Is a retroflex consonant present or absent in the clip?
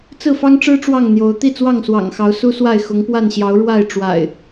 present